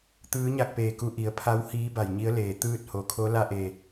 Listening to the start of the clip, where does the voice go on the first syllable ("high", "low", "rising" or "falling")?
rising